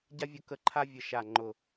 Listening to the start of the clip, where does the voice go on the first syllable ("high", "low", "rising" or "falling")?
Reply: high